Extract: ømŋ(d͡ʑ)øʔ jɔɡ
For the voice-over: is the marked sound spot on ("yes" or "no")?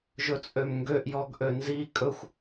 no